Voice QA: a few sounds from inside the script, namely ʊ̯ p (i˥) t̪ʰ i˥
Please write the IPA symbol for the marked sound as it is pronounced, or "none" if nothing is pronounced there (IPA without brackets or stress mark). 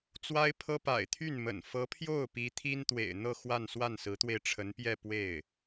i˧˥